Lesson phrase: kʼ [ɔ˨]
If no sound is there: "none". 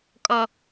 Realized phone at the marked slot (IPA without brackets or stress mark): ɔ˦